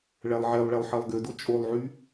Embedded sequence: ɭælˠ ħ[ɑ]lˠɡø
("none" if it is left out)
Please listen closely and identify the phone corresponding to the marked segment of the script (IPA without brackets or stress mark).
ɑ